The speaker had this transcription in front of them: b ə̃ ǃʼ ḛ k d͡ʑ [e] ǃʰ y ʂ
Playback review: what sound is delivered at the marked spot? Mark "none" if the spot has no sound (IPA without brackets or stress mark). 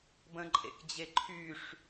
e